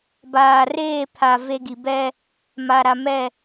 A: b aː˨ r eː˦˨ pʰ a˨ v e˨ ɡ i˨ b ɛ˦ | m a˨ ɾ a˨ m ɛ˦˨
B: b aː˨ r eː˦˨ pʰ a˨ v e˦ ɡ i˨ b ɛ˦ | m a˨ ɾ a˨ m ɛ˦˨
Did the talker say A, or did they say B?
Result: B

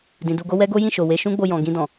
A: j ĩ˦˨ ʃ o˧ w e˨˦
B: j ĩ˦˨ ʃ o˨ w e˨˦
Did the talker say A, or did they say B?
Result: B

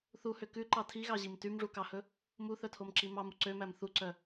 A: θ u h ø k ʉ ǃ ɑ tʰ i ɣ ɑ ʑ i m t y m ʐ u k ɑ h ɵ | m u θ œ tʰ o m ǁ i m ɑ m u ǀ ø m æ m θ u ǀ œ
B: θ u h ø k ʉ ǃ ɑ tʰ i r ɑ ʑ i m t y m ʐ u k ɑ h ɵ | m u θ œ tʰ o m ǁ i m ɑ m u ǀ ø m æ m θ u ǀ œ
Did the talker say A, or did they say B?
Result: A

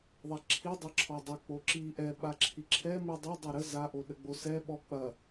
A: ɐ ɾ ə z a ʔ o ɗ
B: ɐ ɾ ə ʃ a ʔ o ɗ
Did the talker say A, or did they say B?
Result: A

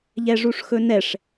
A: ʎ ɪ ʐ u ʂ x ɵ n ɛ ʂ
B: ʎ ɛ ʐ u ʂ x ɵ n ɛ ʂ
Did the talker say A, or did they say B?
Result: B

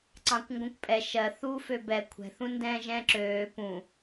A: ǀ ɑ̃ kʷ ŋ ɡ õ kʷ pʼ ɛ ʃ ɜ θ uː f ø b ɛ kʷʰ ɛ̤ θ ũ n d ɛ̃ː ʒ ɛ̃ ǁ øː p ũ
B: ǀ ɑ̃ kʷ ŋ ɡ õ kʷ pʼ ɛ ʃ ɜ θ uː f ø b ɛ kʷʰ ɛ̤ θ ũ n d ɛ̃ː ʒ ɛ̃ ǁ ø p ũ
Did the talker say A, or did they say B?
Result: A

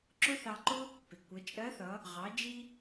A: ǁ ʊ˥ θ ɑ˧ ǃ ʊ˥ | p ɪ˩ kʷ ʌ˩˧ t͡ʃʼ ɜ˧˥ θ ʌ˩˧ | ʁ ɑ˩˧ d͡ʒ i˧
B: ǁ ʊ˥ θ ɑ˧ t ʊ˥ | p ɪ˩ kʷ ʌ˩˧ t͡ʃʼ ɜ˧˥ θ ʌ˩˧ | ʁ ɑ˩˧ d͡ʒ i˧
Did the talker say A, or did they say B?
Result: A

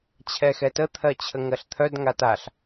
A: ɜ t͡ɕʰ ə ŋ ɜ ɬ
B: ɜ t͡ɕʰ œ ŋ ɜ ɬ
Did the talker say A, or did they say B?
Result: A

